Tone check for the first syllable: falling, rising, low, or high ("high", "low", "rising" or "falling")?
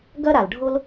high